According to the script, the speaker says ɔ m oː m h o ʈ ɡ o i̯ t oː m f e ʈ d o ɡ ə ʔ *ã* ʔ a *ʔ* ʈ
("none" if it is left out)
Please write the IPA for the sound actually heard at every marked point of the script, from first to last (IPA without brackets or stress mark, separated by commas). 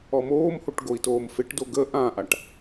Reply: ã, none